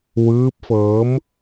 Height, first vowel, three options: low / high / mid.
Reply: high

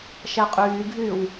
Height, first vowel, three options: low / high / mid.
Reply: low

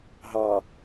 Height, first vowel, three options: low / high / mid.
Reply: low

